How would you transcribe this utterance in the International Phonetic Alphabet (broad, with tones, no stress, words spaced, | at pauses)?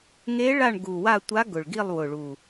ŋe˧˥ɭa˦˨ɳɡu˨˩wa˦˨ tʷa˧˥ɡʊ˨˩ɭɡi˦˨lˠ wʊ˨˩ɭu˨˩